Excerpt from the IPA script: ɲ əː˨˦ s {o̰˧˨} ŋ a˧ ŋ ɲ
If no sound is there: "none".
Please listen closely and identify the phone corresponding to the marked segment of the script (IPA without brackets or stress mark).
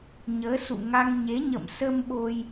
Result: ṵ˧˨